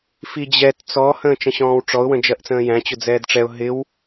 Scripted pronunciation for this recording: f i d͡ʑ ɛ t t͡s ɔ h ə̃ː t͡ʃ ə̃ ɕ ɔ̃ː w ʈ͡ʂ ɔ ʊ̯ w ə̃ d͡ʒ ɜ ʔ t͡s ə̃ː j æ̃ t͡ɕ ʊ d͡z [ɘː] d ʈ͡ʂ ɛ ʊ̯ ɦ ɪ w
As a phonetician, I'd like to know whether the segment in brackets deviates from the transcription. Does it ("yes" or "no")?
yes